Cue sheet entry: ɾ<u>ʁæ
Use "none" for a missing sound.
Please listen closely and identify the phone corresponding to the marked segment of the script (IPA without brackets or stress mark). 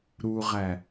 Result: u